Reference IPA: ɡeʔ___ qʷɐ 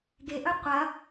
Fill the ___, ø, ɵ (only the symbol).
ɵ